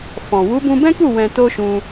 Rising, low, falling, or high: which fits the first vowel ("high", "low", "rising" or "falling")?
low